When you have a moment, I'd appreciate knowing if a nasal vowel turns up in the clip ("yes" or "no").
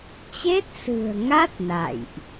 no